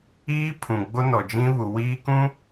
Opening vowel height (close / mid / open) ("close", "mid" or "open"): close